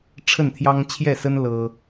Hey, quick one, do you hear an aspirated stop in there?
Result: yes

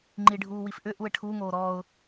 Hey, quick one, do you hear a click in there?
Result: yes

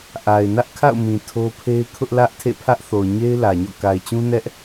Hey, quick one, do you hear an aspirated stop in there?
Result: yes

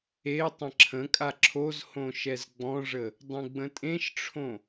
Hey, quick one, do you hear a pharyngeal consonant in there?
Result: no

